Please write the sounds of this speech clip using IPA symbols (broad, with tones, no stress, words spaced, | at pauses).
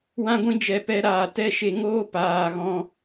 wã˦ɡʷĩ˦d͡ʒɛ˧ pɛ˧ ɾaː˨ tɛ˦ʃe˧ŋoː˦ paː˨ ɣɔ̃˧